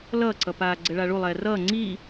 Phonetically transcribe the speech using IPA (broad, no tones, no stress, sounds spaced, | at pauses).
l ʌː ǀ ʌ p aː ɡ͡ǀ ɛ ɭ a ɭ u lˠ ɛː r ʌː ŋ͡ǀ iː